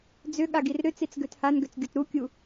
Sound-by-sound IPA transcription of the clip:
d͡z ʏ ɠ a ɡ i r ɾ ʏ t͡s i t͡s ɡ ø t h a n ɡ ø t͡s ɡʲ o t ɾ u kʲ u

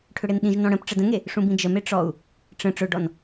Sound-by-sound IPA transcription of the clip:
ʈʰ ʏ ɽ e n ɗ ĩ ʒ n ɔ̃ ɽ ə̃ p ʈ͡ʂ ə d ə̃ ŋ e | ʂ ũ b ĩ d͡ʒ ə m e ʈ͡ʂ ɔ u̯ | ʈ͡ʂ ə̃ ʈ͡ʂ ʊ ɖ ɔ n

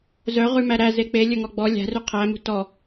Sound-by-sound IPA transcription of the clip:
z œ ʁ ʉ m æ ɾ æ z e k͡p e lʲ ɵ ŋ ɔ ɡ͡b ɔ lʲ æ̤ r ʉ qʰ æ m ṳ t ɔ

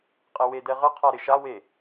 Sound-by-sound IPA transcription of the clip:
qʼ e w e d ɛ ʁ ə qʰ a ɾ ɪ ʃ a w e

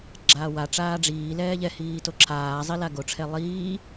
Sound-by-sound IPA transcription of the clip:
ɡ͡ǁ aː w a ʈ͡ʂ aː ɖ͡ʐ iː l ɛː ʎ ɛ h iː t o ǁʰ aː zˤ i l a ɡ o ʈ͡ʂʰ ɛ lˠ iː

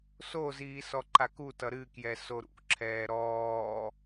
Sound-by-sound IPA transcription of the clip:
s o z iː s ɔ ǃ a k u t ʌ ɾ ɨ k j ɛ s o ɾ ṵ ǁʰ ɛː ɾ ɔː

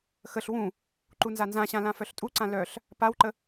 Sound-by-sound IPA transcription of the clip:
x ə ɬ w ũ | ǃ u n z a n z ã ɕ ã l ã f œ ɬ tʼ u ǀ ã l œ ɬ | p a w ǃ ə

